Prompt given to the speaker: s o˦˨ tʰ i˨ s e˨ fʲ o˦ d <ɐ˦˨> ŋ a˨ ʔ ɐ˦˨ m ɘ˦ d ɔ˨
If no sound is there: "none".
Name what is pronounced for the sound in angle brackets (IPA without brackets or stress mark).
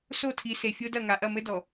ɐ˦˨